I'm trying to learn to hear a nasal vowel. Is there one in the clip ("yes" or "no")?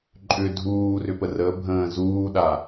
yes